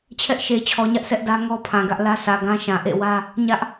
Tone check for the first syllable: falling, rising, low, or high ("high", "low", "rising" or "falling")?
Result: high